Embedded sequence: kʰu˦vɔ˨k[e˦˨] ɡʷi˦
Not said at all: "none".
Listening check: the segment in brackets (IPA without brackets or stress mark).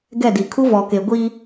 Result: e˨